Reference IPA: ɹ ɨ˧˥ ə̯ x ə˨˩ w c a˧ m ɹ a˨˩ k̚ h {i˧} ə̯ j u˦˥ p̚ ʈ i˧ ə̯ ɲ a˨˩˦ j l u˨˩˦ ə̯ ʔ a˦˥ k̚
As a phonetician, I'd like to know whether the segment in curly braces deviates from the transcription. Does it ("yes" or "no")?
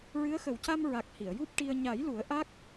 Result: yes